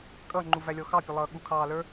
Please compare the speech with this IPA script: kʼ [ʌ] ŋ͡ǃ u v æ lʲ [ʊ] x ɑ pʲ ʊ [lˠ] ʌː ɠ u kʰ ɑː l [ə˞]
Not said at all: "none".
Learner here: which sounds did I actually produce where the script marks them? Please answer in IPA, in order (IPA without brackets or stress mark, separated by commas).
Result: ʌ, ɔ, lˠ, ə˞